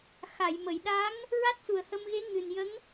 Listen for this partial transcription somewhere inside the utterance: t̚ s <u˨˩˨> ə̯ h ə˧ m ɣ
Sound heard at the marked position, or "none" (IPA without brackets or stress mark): u˨˩